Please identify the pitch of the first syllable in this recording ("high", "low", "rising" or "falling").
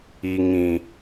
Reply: low